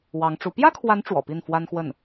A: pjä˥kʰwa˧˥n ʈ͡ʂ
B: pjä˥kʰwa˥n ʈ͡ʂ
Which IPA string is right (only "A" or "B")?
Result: A